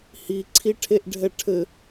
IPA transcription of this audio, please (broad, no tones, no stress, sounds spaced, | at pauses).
h i ǀʰ i ʈʰ e ʔ ɖʱ ɛ ʈʰ ɘ